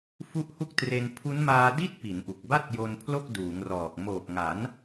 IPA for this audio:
fu˦˥ʔhu˥˩k̚ tre˧n pʰu˦˥nmaː˧ di˥˩t̚ pi˩˦nʔu˨˩k̚ba˥˩t̚jo˧n pʰlo˥˩k̚duː˩˦ŋrɔː˨˩k̚ moː˨˩k̚ŋa˩˦n

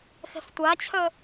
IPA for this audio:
xɛ̤ftʷat͡ɕʰœ

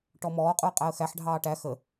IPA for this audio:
ʈɔmɔːqʼuə̯ qʼæə̯xæħɖʱɑː ʈæ xə

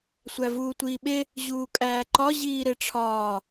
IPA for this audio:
sʷævuːtʷiːɓe | ʑuːkʼæːǃɒ ʑiːɾeʈ͡ʂʰɒː

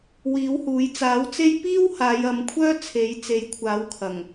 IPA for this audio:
wiː˨˥whuː˨˥j t͡saː˨˥wt͡se˥j piː˥w haː˨˧jɐ˨˧mkʷʰœː˥ t͡sʰe˨˥jt͡se˨˥jkʷʰaː˨˥wkʰɐ˨˩ŋ

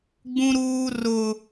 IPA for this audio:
ɡ͡bũ˦ɾuː˦rʊ˦

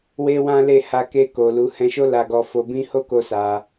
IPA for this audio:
we˦wã˦le˦˨ ha˧ ke˧ ko˨lu˨˦ hɛ̃˧ʃo˦la˧ɡɔ˧ fo˧bĩ˦ ho˦ko˧ sa˧

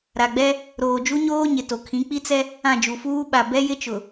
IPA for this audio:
ɾa˨ɡ͡bɛ˦ | ɾoː˨d͡ʒu˦ɲoː˦ ɲɪ˨to˨ kʰĩ˨˦k͡pi˦t͡sɛ˦ | ã˦˨d͡ʒu˨fuː˦ɓa˨ bɛ˦jɪ˦t͡ʃʊ˨

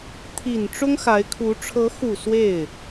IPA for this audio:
t̪ʰi˨˩n ʈ͡ʂʊ˥ŋxa˧˥ɪ̯kʰu˧˥ ʈ͡ʂʰɤ˧˥xu˨˩ swe˥˩ɪ̯

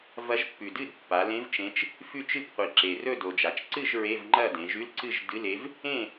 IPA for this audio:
vɐ˧˥ʒpːʉ˨˩dɨ˥˨d pːa˩˧lẽ˧˥v t͡ʃẽ˧˥t͡ʃ | fʉ˥˨t͡ʃɨ˥˨pqʷi˨˩ ǁe˨˩rɵ˥˨do˨˩d͡ʒa˩˧t͡ʃ ǀɨ˥˨ʒ ɹe˧˥˧vŋ͡ǃɐ˥˨dẽ˩˧ ʒʉ˧˥˧lǀɨ˥˨ʒ dɨ˧˥˧le˧˥v | ẽ˥˨

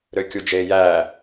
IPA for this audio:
ɾøkʲud͡ʒe jæ

